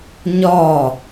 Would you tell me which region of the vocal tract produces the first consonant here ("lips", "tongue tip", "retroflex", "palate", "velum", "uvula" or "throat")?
palate